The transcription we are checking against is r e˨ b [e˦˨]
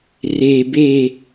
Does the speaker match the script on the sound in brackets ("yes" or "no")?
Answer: yes